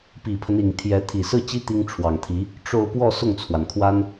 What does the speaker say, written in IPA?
p i˨˩ pʰ ə˦ n i˨˩ ŋ t̪ʰ j ɛ˧˥ t̪ʰ i˨˩ s ɹ̩˥˩ t͡ɕ i˥ t̪ i˥ ŋ ʈ͡ʂʰ w ɑ˨˩ ŋ t̪ʰ i˧˥ | ʈ͡ʂ o˥˧ ʊ̯ p w ɔ˥˧ s ʊ˥˩ ŋ t͡sʰ w a˩ n kʰ w a˥ n

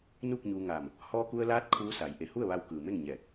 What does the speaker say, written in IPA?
n uː˥˨ k̚ ɲ uː˧ ŋ aː˧˩ m | h ɔː˧ k u˧ ə̯ l aː˧˥ t̚ kʰ uː˧˥ s a˩˧ j ʔ e˩ h u˥˨ ə̯ ʋ a˧ w k ɯː˩ m e˥˨ ŋ ɲ ɛː˧˩ k̚

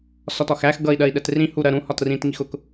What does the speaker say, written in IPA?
s ɒ t ɒ x æ x ɡ ʌ i̯ ɗ ɜ i̯ ɗ ɛ t r ĩ h u ɾ ɜ ɾ ũ h ɒ t r ĩ t ŋ i x ʊ k

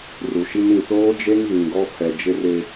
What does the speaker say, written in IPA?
r u˨ ʃ i˦ n ĩ˨ t oː˦ d͡ʒ e˦ ŋ ɣ ĩ˨ ɡ ɔ˦ pʰ ɛ˨ d͡ʒ ɪ˦ r ɪ˦

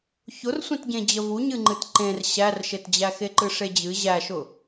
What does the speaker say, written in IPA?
ç ʊ r sʷ ẽ t ɟ ẽ d͡ʑ ə v u ɲ ɨ ŋ͡ǃ ɨ t ǃ ẽ r ɕ æ r ʃ e t d͡ʑ æ x e ǃ ɨ ʂ e d͡ʑ ɨ ʑ æ ʃ ʊ

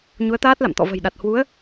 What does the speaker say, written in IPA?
ɲ u˨˦ ə̯ t̪ aː˦˥ t̚ l a̰˧˨ m t̪ ɔ̰˧˨ v ə̤˨˩ j ɗ a˨˩ t̚ h w u˨˦ ə̯

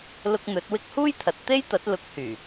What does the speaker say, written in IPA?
l ʊ˧ k̚ n̪ ɵ˨˥ t̚ w ɪ˧ k̚ h uː˥ j t̪ʰ ɐ˨ t̚ t̪ e˥ j t̪ ɐ˨˥ t̚ l ʊ˨˥ k̚ h yː˨˩

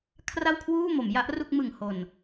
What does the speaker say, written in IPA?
kʰ r a˥˩ w kʰ w uː˥˩ m o˩˦ m j a˦˥ ʔ r u˥˩ k̚ m ɯ˨˩ ŋ h o˨˩ n

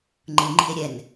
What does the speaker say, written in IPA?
ŋ͡ǃ ɯ ŋ͡ǃ i̤ e̯ ɾʲ ɛ n

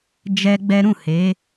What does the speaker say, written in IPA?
d͡ʒ ɛ˦ ɡ͡b ɛ˦ ɾ ũ˦˨ h e˨˦

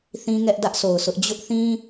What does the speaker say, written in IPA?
θ ĩ˦ ŋ ɛ˦ ʔ d ä˦ ʔ s o˨ ʊ̯ s ʊ˦ ʔ d͡ʑ ʊ˦ ʔ θ ĩ˦

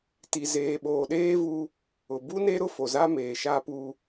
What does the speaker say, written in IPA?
t i˨ z eː˨ ɓ oː˨ ɗ eː˦ v u˦ | ʊ˨ b u˦ n e˦ ɾ ʊ˦ f o˨ z a˦ m eː˨ ʃ a˦ p u˦

